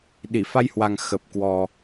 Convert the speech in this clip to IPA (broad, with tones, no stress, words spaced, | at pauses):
ɗi˧˩fa˧jhwa˨˩ŋ xə˨˩p̚kwɔ˨˩